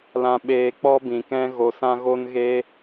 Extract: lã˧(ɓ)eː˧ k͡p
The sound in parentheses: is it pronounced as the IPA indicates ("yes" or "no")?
yes